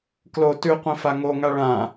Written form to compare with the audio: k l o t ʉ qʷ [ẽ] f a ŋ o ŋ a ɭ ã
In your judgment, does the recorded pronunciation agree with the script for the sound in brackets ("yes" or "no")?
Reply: no